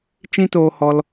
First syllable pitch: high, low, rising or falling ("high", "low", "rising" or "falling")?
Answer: high